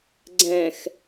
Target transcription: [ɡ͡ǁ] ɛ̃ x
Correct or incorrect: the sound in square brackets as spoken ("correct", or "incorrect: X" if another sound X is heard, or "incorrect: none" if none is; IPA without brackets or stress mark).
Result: incorrect: ɡ͡ǀ